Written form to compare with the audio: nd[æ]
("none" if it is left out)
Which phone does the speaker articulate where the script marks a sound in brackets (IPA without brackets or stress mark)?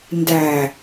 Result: æ